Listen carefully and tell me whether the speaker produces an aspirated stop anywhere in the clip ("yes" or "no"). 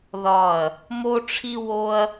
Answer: yes